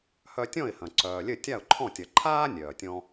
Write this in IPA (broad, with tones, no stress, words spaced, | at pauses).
hœ˧tʲɔ̃˥˩ɪ̯hɐ̃˩ ǀœː˩lʲɘ˥˩tʲa˥˩ʊ̯ǃʰɔ̃˥˩ tʲɐ˩ ǃʰaː˥ nʲœː˩tʲɔ̃˧